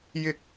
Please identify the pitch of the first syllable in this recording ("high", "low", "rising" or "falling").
high